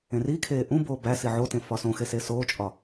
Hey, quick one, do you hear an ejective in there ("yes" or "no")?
yes